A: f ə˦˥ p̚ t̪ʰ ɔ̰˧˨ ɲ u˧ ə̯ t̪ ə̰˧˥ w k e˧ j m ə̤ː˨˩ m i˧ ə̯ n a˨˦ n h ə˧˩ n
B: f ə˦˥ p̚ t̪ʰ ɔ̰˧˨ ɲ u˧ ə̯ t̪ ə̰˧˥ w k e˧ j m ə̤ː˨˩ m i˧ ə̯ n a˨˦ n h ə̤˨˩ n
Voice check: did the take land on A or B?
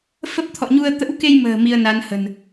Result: B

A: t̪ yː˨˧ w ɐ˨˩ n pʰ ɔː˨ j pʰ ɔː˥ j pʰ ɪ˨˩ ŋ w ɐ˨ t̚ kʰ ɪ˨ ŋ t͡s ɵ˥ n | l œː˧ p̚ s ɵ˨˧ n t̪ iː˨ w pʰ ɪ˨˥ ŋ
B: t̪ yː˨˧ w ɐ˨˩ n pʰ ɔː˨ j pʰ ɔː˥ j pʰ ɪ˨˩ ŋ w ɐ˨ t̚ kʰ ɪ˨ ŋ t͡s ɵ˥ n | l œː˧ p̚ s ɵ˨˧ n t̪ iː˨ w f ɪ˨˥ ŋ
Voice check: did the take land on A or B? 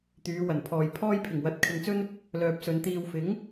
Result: B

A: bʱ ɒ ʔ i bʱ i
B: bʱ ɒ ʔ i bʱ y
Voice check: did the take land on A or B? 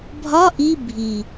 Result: A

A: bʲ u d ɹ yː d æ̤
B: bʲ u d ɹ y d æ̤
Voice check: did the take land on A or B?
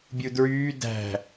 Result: A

